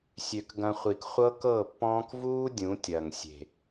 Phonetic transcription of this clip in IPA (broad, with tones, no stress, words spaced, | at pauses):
sʲø˨kɡɐ̃˧χʷi˨k χʷɤ˦kɤ˦˨pːɔ̃ː˦k vuː˦ dʲũ˨˦tʲɐ˨ŋ sʲe̤˨